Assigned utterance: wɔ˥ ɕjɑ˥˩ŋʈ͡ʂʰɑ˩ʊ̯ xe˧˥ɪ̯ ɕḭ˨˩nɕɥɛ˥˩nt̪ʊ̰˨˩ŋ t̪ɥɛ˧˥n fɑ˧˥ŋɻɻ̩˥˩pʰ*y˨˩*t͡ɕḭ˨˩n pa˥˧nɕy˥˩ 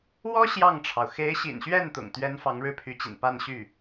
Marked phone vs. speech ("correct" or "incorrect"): incorrect